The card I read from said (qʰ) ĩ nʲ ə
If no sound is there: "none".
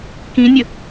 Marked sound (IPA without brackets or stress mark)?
k